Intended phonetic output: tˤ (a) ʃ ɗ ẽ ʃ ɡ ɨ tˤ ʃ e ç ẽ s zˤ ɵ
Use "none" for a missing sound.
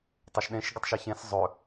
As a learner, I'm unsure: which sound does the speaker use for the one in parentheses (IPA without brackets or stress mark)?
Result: a